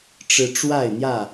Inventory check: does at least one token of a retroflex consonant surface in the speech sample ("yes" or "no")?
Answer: yes